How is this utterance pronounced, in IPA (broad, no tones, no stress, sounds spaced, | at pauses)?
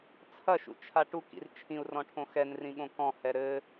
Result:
t͡sʰ ɐ ʃ ṵ t͡ʃʰ a ʈ u k ḭ r t͡ʃʰ ĩ u̯ r ɔ̃ ʈʰ õ x ɛ n r ĩ ɠ õ k ɔ̃ h ɛ ɾ ɘ